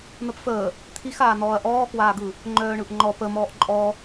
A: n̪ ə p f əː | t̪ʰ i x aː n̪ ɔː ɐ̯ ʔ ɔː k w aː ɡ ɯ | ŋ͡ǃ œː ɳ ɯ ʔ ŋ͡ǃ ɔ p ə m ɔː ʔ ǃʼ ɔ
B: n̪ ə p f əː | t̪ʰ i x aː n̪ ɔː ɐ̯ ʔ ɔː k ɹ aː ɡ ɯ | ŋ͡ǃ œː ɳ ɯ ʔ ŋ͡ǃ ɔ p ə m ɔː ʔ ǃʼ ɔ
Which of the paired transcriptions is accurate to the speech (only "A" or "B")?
A